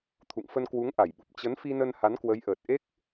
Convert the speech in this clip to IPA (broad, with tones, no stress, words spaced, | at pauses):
t̪ʰṵ˧˨ŋfə˧n kwu˨˦ŋʔa˧˩jɓu˨˩p̚ t͡ɕə˨˦nfi˧nə˧n ha˨˦nkwə˨˦jʔəː˨˩t̚ ʔe˦˥k̚